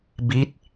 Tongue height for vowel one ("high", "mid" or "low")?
high